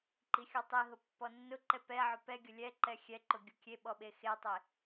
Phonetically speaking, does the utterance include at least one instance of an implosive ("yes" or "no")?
yes